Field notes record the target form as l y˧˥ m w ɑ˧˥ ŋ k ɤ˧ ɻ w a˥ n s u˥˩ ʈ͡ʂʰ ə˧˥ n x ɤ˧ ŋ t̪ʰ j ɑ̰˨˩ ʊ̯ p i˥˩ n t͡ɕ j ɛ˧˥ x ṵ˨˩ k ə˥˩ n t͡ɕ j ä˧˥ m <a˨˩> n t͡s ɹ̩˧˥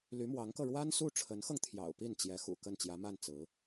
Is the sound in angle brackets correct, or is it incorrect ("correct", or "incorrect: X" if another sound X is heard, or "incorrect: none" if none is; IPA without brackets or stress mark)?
incorrect: a˥˩